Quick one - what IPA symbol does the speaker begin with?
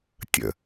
tʲ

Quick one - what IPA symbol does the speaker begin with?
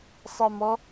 sˤ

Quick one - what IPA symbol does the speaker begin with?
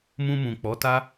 m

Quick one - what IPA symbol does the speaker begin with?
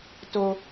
t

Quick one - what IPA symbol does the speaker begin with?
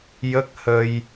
j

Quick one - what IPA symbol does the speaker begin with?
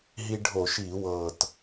ɦ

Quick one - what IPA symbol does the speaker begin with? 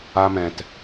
a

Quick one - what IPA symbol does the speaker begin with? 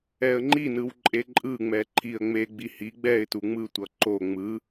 ɛ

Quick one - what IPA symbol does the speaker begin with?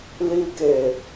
l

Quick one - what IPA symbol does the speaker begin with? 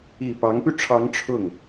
i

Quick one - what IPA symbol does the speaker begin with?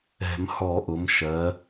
ɛ̤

